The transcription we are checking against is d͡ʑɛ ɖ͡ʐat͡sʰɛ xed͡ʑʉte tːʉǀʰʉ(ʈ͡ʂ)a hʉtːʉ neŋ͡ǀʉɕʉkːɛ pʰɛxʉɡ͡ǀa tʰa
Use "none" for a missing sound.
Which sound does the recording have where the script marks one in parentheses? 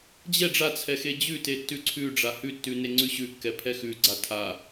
ɖ͡ʐ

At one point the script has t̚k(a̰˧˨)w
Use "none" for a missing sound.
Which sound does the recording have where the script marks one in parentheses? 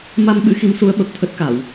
a˧˩˨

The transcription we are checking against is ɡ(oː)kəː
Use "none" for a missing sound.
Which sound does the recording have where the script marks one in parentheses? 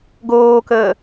oː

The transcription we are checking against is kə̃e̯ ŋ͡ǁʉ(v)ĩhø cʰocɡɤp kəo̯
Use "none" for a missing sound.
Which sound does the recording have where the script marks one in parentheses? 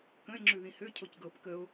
ð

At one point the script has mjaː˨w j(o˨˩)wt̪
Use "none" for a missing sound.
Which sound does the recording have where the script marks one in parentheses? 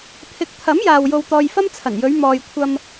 o˧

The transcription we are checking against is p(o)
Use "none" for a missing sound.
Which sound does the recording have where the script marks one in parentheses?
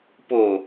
o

